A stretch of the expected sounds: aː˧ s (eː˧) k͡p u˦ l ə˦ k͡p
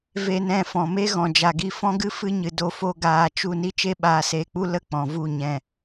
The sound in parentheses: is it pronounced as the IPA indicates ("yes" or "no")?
yes